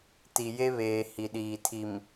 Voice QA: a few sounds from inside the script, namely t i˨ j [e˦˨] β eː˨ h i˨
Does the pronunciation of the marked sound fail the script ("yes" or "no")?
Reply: yes